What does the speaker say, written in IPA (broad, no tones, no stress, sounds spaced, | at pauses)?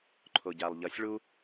ǃʰ o ɟ a lˠ ʎ ʌ sʲ ɭ u